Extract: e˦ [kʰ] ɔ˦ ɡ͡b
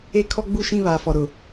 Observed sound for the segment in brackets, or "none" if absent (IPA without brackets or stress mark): kʰ